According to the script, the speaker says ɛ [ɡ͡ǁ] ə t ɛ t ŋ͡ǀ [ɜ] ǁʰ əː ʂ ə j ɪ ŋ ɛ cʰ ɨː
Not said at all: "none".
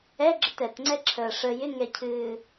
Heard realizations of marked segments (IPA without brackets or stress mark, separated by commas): ɡ͡ǁ, ɛ